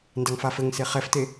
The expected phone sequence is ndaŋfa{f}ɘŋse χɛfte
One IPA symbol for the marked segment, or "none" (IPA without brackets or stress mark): f